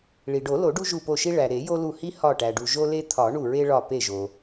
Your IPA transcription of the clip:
ɭ i˩ ɖ o˨˩˦ l o˨˩˦ ɖ u˦ ʒ u˧˩ p o˧˩ ʃ i˦ ɭ æ˩ ɾ e˨˩˦ j o˦ l u˧˩ h i˦ h ɒ˧˩ ʈ æ˩ ɖ u˩ ʒ o˦ l e˦ t̪ʰ ɒ˨˩˦ ɳ u˧˩ ɹ e˦ ɭ ɒ˧˩ p e˧˩ ʒ o˩

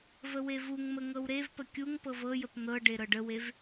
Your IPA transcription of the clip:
v ə w e v u ŋ m ə ŋ ɤ w ɾ e v p ə kʲ u ŋ p ɤ v ɤ j ə p n̪ ɤ ɖ e ɾ ɤ ɖ ə w e v

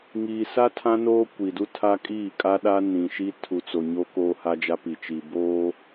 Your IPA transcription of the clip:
ŋ iː˨ s a˦ tʰ ã˦ n oː˦ kʷ i˨ d u˦ tʰ a˦ kʼ iː˦˨ kʼ a˦ ɗ a˦ n ĩ˨ ʃ i˦ tʰ u˨ t͡s o˨ ɲ o˦ k oː˦ h a˦ d͡ʒ a˦ p i˨ t͡ʃ i˨ b oː˦

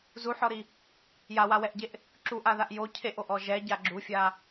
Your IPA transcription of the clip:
z u ħ ɔ ɾ i | j a w a w ɛ ʔ ɟ e ʔ | ǁ u ʔ a ð a ʔ j o cʰ e ʔ o ʔ ɔ ʒ ɛ ɟ a ɡ͡ǁ u fʲ a

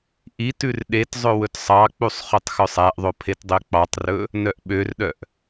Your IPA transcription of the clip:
ʔ i t ʉ r ɗ e t zˤ ɵ w ɵ t sˤ ɑ k͡p u sˤ χ ø tˤ x œ sˤ æ ʔ ðˤ o pʰ e t dˤ ø k͡p ɑ tˤ r ɵ | n œ ʔ ɓ ø r ɗ œ ʔ

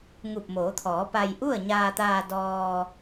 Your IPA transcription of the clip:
ŋ u˧˩ p̚ m oː˩˧ t̪ʰ ɔː˩˧ p a˧ j ʔ u˥˨ ə̯ ɲ aː˧ t̪ aː˧ d ɔː˧

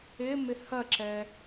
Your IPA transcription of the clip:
ɪ m ɪ h ɐ ǁ ɛ

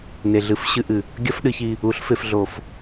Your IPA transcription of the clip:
n e˨ ɮ ɨ˨˦ f ɕ ɨ˧ ʔ ɨ˨ | ɡʲ ɐ˦ f ɗ ɨ˧ ç i˧ | u˨˦ ɬ f e˧ f ɮ o˧ f

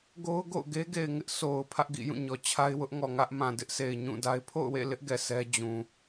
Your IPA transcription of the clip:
ɡ o˦ ʊ̯ ɡ o̰˦˨ ʊ̯ ɡ e˦ ɡ e˨ ɪ̯ ŋ ɪ˦ ʔ sʰ o˨ ʊ̯ pʰ ä˦ ʔ ɡ ḭ˦˨ j ũ˦˨ ɲ ɔ˨ t͡ɕʰ a˦ ɪ̯ w ʊ˦ ʔ ŋ ɔ˨ ŋ ä˦ ʔ m ã˨ d ɪ˦ ʔ s e˨ ɪ̯ ɲ ũ˦˨ d a˦ ɪ̯ pʰ o̰˦˨ ʊ̯ w ḛ˦˨ l ɪ˦ ʔ ɡ ɛ˨ s ɛ˦ d͡ʑ ũ˨

